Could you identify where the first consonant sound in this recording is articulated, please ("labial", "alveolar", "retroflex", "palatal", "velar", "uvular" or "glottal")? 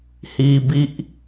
glottal